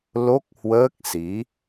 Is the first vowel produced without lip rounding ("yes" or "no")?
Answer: no